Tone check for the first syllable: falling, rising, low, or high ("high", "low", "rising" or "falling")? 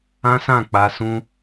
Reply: high